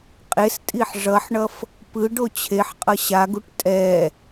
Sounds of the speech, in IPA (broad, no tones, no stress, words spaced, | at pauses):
qʼestʼiħ ʐʌħɳʌf | pɯɖ ot͡ɕʰeħqʼʌ ɕaɡuʈ tʼɛ